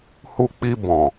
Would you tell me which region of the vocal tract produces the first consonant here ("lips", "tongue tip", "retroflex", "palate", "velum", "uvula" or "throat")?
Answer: throat